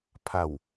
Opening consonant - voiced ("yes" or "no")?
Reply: no